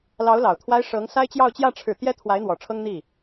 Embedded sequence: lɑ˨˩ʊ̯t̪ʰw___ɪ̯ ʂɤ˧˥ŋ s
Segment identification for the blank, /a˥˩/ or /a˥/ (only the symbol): a˥